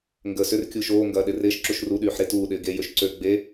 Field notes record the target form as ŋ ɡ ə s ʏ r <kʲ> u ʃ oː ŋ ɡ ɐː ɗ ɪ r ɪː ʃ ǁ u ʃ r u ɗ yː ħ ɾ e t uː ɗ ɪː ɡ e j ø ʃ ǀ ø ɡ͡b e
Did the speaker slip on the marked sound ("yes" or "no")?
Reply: no